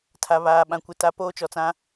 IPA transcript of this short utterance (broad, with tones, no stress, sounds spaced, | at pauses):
tʰ a˨ β aː˨ ɓ ã˨ kʷ ɪ˨ t a˨ p oː˦ t͡ʃ ɔ˨ t͡s ã˦